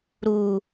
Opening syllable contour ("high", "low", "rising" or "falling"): high